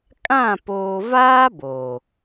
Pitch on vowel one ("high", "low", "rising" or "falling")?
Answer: falling